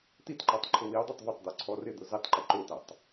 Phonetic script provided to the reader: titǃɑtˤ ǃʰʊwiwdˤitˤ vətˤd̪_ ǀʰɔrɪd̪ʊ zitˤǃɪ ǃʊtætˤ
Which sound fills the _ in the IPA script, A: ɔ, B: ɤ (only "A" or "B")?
A